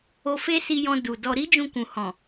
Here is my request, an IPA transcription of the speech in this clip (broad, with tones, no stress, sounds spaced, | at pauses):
o˧ f e˦ s i˧ j ɔ̃˧ d u˨ d ɔ˧ ɾ i˦ d͡ʒ ũ˧ k ũ˨ h ɔ̃˨